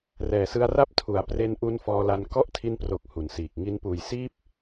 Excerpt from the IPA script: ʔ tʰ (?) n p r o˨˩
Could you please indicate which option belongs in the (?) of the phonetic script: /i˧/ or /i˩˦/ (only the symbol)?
i˧